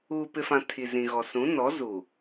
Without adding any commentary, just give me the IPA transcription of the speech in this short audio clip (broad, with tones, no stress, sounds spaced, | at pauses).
uː˨ p ɪ˨ f ã˨ tʰ i˨ z ĩ˨ ɣ ɔ˨ s ũ˨˦ n ɔ˨˦ z u˨